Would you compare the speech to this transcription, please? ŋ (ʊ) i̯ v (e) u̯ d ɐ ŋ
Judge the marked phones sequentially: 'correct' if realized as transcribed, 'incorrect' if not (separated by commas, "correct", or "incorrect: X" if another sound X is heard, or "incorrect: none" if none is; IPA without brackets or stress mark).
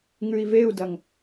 incorrect: ʉ, correct